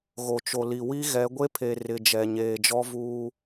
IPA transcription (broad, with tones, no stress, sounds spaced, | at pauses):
ɣ o˨ t͡ʃ o˨ l i˨ w i˦ ɣ ɛ˨˦ ɡʷ e˦ pʰ e˨ r ɪ˨ d͡ʒ ɛ˨ ɲ eː˨ d͡ʒ ɔ˦ v uː˦